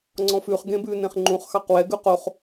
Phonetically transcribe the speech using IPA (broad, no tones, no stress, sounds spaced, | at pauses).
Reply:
ŋ͡ǀ ɔ̃ f ʉ χ ɡ ẽ b ʉ n ẽ χ ŋ͡ǃ ũ χ x ɑ q w ɛ ɡ ʉ q o χ